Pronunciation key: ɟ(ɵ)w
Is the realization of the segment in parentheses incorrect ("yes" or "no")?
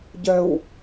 yes